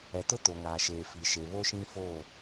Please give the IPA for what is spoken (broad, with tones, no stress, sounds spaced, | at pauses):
ɛ˨ t ʊ˦ t o˨ ŋ aː˨ ʃ eː˨ f i˨ ʃ e˨ β o˦ ʃ ĩ˦ f o˦˨